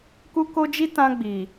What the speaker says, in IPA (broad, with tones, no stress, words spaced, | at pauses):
ku˧ko˧d͡ʒi˧ tã˧ɡ͡bi˨